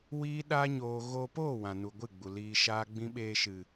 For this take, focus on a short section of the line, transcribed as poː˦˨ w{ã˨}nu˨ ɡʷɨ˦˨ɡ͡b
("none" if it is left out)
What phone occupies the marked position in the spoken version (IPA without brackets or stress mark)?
ã˨